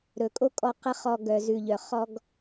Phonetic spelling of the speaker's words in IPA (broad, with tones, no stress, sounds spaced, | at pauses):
ɾ ɵ˨ kʼ o˦ kʼ ɔ˧ q ə˧ χ ɔ˨ ɡ œ˨ z ʉ˨ ʎ œ˨ χ ɔ˧ ɡ